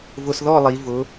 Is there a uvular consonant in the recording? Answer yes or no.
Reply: no